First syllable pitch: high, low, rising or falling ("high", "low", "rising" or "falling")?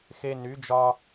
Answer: high